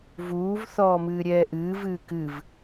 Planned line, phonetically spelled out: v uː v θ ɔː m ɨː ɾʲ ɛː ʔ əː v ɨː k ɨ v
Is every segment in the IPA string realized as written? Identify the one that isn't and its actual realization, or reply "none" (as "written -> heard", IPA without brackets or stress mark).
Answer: əː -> ɨː